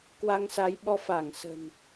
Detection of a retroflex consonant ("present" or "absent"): absent